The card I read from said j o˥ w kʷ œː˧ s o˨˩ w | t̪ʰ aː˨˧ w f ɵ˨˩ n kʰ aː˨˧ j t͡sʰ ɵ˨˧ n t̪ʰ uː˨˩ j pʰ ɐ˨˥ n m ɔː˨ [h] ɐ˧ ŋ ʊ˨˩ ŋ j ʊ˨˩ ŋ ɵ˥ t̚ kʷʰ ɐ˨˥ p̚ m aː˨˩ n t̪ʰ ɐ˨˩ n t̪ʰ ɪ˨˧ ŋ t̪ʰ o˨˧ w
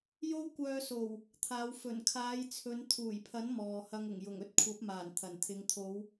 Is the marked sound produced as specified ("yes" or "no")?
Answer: yes